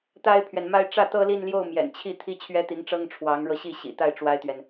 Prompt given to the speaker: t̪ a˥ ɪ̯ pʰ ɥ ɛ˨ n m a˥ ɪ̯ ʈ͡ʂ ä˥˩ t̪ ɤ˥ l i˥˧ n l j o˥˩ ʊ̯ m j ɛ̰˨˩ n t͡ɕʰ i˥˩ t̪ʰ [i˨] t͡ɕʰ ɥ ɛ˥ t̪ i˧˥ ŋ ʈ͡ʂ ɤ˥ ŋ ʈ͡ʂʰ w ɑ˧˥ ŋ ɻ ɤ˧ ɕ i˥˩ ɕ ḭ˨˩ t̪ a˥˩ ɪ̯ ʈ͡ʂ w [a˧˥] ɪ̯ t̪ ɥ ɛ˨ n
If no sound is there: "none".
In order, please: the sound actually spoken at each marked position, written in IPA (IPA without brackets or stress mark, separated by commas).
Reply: i˥, a˥